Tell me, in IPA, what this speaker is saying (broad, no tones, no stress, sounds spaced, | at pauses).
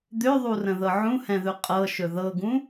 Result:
d̪ ø ðˤ u r ə̃ ð ɤ ʕ ũ h ɛ̃ ð ɵ qʼ ɤ ʃ ɵ ð ɤ ɡ ũ